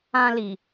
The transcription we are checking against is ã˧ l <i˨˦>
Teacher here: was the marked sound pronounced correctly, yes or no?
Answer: no